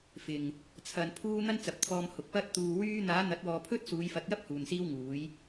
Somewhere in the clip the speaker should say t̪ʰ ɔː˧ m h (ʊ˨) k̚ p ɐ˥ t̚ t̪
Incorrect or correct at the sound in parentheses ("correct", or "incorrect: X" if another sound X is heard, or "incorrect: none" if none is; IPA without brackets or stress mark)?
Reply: correct